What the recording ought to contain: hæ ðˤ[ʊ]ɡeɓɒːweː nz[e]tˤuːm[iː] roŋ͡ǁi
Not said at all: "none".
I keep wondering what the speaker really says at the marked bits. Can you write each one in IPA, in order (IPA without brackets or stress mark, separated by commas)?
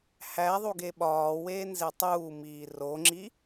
u, e, iː